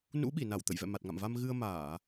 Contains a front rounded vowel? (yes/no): no